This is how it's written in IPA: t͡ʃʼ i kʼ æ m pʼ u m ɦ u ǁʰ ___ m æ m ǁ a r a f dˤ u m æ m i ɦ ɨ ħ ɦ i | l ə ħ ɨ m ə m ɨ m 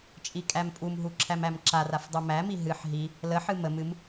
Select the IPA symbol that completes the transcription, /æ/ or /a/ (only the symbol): æ